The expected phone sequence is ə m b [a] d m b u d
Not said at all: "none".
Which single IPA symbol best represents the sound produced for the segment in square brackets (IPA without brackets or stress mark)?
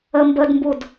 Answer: ə